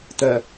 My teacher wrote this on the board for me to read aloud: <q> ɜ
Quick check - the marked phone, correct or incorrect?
incorrect